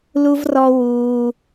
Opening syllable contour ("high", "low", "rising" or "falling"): high